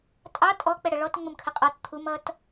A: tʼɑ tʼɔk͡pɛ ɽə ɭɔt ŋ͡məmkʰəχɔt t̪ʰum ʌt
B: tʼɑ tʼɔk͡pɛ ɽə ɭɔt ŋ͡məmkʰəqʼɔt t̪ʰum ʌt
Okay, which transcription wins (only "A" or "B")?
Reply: B